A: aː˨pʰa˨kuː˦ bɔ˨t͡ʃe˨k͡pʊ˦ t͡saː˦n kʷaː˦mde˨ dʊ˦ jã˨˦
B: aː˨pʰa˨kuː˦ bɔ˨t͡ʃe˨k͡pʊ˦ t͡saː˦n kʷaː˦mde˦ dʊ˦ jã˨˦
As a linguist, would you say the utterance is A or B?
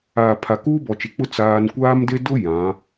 B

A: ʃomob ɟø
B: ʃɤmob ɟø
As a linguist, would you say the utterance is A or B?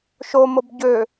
A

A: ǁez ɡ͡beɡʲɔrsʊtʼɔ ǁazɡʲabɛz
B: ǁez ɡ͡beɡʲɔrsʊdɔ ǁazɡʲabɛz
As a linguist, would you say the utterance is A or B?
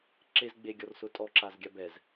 A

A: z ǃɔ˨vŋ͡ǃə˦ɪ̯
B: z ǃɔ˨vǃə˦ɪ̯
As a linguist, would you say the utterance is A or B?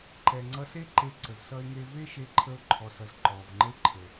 A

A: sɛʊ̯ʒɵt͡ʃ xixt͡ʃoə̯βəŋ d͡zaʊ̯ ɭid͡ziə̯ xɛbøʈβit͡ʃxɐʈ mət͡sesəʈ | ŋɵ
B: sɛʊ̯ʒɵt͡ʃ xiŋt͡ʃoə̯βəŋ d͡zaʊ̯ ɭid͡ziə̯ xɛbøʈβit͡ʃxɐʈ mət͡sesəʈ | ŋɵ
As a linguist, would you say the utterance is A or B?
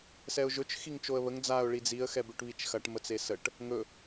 B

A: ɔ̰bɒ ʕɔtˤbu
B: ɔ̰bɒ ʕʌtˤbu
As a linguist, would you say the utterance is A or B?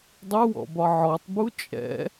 A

